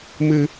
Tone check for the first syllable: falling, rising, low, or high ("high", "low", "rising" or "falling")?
low